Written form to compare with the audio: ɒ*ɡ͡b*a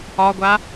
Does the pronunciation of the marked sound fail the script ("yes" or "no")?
yes